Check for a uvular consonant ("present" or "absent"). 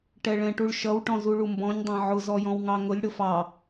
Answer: absent